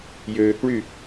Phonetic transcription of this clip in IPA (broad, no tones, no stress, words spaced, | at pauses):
jøːkɭy